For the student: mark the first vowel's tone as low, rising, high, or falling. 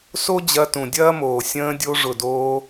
high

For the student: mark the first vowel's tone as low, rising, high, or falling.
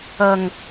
low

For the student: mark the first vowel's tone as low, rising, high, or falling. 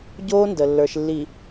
high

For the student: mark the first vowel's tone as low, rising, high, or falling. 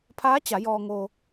rising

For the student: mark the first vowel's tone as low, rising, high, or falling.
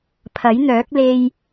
rising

